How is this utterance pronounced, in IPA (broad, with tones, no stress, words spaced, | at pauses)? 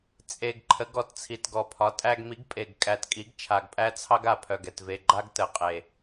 t͡sʼe˨˩ɡ ǃʰə˩˥ɡɔ˨˩tt͡sʰi˨˩t ɡɔ˨˩pʰɒ˩˥tʼæ˦ɡ mi˩˥ɡpʼe˨˩ɡkʼæ˨˩tkʼi˩˥ɡ t͡ʃʰa˨˩ɡpʼæ˦t͡sʰɑ˦ɡ a˨˩pʰœ˨˩ɡɛ˨˩tve˨˩ ɡ͡ǃa˦ɡtə˨˩qʼe˨˩